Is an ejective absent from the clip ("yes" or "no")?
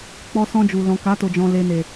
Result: yes